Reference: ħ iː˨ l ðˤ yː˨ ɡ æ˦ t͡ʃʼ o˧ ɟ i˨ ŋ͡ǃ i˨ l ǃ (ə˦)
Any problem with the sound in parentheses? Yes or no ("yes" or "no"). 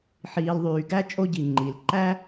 yes